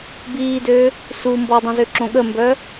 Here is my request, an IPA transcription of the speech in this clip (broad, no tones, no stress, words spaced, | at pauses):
biːdø | su mbɔdˤõzøǁõ ɠəmbœ